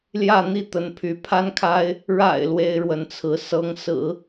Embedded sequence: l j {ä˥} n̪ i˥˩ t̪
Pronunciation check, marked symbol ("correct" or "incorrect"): incorrect